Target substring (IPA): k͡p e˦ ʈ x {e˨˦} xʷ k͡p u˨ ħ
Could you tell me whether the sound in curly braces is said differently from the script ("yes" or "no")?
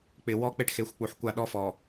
no